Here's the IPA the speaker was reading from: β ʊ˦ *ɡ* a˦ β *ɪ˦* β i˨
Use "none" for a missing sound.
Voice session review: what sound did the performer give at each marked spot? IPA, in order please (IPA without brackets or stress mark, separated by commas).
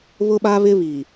ɓ, ɪ˦